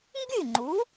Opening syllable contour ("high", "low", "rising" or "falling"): falling